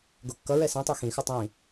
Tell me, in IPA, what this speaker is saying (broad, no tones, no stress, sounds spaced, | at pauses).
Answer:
ɡ o kː ʌ ɹ ɛ s ĩ tˤ o x ĩ x ɯ tˤ ĩ